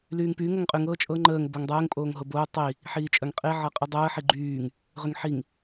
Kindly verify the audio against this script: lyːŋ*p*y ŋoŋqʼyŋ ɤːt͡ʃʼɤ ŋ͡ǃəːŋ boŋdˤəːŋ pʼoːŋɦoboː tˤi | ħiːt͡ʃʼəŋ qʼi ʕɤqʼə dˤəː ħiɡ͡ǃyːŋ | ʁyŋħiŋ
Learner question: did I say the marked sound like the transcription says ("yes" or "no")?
yes